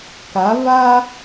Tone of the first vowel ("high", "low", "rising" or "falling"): rising